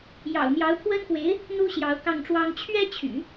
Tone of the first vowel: low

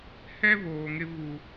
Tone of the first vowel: high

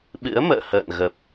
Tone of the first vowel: rising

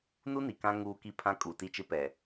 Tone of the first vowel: high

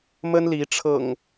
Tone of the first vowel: high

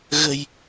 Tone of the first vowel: low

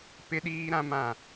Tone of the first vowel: high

